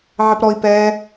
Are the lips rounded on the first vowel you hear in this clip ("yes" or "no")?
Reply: no